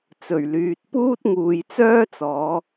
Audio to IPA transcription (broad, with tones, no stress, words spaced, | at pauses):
t͡sɵ˨˩ɥlyː˨t̚ puː˥t̚ŋuː˨jt͡sœː˥t͡sɔː˨˧